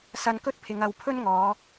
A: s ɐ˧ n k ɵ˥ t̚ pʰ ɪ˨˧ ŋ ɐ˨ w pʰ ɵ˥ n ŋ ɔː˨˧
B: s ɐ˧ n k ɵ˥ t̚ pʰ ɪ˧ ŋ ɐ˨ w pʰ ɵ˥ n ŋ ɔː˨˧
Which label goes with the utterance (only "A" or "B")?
A